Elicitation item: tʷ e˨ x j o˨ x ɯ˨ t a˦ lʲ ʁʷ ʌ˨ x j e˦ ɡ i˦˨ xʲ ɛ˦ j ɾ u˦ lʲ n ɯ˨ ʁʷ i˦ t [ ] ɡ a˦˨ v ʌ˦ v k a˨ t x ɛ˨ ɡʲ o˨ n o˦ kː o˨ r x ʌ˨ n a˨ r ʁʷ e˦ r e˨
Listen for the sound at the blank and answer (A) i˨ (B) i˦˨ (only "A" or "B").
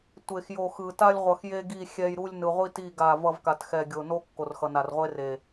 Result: B